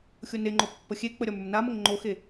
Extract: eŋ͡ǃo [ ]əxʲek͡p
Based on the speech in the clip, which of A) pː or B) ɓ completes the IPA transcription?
A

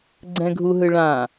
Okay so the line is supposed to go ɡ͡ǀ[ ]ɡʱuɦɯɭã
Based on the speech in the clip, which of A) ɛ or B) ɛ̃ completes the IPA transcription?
B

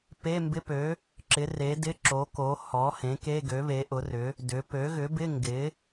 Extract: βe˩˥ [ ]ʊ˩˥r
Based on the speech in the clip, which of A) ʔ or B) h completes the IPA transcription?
A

